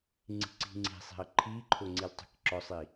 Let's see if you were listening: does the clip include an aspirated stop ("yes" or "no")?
yes